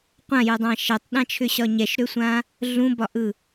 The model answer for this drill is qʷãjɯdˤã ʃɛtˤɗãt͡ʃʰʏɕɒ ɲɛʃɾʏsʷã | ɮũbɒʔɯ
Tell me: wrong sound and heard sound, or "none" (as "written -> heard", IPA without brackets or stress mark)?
none